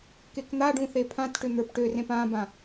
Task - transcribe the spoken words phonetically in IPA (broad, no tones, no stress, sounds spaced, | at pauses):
k e k n̪ a ɖ ũ θ e pʰ ã t ʈ ʏ n̪ ə˞ p ʈ ø r ẽ p ã b ã